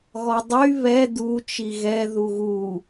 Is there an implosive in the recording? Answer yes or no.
no